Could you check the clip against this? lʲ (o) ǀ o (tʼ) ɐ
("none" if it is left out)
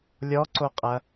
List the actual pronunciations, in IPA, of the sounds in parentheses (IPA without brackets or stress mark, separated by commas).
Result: ɔ, qʼ